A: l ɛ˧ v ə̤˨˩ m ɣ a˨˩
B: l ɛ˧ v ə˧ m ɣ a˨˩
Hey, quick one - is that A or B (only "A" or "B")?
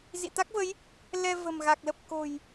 A